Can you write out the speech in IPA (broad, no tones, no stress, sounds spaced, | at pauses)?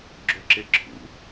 ɡ͡ǁ o ǁ e ǁʰ ṵ